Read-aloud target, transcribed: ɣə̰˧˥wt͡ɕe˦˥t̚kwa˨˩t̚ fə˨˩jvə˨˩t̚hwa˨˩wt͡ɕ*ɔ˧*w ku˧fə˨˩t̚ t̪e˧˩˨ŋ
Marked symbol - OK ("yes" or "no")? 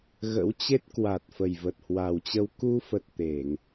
no